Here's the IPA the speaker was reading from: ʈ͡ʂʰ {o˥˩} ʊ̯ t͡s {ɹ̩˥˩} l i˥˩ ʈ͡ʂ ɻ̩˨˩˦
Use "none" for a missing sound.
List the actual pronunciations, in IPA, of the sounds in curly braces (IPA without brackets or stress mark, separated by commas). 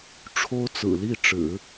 o˥, ɹ̩˨˩